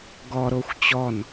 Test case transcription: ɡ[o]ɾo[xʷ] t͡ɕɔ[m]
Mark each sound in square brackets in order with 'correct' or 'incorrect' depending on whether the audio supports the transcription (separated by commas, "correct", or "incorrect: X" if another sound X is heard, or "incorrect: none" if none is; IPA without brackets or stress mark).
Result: incorrect: ɔ, correct, incorrect: n